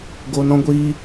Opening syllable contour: low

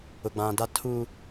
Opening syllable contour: low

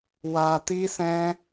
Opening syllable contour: low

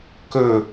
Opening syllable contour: falling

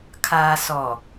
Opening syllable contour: low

